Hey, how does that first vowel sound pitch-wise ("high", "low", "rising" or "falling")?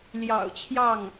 low